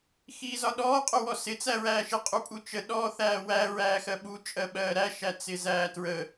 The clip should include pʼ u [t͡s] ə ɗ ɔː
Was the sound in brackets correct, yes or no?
no